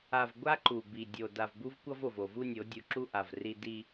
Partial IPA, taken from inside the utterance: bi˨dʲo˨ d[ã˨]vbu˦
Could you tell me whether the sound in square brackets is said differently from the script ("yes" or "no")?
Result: yes